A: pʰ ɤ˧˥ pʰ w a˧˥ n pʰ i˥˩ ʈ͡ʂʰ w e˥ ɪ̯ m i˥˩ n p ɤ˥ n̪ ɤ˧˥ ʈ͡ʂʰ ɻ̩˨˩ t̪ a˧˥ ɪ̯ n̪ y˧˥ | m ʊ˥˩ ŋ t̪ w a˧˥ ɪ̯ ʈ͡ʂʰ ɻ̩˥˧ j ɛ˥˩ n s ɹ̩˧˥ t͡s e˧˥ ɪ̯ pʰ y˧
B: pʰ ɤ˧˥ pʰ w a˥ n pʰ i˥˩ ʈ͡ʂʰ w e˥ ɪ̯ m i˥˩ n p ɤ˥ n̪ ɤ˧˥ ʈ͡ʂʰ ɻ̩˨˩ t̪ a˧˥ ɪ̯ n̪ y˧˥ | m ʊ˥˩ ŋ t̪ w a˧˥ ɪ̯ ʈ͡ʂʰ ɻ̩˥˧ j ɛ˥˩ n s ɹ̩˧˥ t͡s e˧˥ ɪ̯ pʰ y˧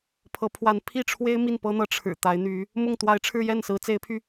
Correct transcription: A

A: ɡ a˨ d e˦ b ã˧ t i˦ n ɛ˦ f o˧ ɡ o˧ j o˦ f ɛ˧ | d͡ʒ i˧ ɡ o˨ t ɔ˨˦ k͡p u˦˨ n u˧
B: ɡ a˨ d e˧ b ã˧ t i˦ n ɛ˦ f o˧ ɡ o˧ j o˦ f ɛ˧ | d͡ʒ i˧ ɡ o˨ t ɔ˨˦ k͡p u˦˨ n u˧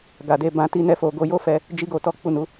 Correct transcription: B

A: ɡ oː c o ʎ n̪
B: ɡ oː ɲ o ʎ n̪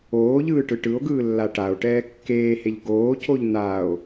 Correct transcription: A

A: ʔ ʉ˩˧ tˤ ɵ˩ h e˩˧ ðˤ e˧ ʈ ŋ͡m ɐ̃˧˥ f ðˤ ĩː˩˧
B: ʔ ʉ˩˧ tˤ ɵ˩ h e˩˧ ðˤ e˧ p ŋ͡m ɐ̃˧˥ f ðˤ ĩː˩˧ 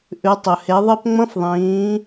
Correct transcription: B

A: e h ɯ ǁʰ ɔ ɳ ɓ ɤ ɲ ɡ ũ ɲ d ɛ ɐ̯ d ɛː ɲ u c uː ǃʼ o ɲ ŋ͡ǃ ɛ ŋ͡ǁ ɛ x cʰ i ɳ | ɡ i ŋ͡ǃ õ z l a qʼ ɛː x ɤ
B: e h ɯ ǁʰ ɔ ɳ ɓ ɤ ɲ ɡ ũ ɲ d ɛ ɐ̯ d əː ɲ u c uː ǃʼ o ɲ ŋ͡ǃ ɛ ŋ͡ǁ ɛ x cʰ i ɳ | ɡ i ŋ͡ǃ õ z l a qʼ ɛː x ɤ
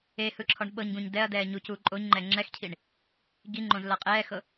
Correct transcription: A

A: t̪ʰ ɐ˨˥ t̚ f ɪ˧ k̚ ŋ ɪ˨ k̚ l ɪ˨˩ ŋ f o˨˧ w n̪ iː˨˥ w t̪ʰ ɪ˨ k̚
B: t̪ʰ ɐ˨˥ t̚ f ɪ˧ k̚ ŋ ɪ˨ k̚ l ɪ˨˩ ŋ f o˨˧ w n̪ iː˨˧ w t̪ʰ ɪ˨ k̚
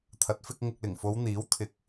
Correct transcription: A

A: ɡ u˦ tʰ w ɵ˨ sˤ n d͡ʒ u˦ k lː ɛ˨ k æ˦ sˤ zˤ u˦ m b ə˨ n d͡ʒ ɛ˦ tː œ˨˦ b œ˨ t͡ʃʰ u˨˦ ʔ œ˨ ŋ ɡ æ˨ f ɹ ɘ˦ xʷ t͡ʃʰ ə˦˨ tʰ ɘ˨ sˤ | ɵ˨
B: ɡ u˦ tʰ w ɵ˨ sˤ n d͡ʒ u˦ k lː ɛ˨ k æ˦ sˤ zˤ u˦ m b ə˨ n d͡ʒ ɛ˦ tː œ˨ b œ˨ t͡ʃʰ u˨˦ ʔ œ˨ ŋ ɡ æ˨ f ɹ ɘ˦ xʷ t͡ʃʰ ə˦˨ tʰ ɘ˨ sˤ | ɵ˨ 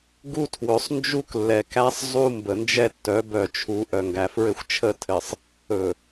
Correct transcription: A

